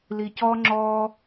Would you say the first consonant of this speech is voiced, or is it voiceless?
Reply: voiced